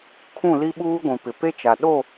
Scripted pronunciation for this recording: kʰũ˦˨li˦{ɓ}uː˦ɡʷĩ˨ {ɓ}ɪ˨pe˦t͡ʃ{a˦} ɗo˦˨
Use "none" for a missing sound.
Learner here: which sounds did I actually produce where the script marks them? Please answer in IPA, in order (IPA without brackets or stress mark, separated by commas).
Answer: ɓ, p, a˨